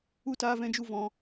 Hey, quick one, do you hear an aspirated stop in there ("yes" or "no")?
no